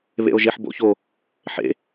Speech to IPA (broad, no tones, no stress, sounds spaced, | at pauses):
β ḛ o̯ ʒ e ħ b o̰ ç o | ħ ḛ